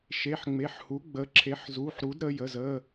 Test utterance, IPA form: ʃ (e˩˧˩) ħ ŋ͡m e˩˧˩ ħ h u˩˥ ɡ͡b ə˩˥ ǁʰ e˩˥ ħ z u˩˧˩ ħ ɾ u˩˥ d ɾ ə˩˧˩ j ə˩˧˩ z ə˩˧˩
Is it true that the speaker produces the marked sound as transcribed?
yes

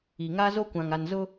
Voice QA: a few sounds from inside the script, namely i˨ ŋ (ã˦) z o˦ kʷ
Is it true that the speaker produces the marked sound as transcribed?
no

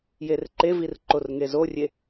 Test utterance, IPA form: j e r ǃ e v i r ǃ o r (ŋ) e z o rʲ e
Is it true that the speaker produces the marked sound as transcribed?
yes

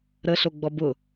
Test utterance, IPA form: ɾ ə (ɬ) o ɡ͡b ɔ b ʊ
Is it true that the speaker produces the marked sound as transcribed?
yes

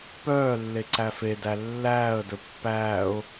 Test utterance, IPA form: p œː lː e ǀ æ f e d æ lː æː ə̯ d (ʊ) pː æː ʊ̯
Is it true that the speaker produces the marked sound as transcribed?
no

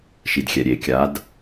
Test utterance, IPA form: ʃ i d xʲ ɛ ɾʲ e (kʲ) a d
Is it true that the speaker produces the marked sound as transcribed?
yes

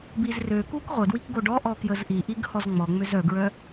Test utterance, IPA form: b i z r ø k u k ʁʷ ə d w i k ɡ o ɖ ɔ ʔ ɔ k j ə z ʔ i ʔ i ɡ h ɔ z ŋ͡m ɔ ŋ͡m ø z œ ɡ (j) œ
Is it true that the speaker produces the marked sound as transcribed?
no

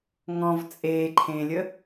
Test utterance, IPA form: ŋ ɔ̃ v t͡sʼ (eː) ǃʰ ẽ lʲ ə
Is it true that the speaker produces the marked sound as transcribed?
yes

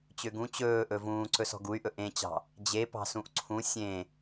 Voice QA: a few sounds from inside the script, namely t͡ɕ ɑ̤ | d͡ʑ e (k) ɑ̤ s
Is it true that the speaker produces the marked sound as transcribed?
no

